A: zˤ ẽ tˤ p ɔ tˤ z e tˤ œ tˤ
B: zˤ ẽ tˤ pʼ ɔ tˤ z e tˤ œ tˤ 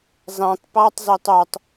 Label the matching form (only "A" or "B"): A